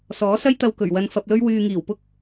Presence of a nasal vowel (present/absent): absent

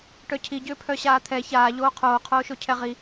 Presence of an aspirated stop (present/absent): present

